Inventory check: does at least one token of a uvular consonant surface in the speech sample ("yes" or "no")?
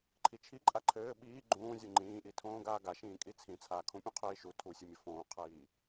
yes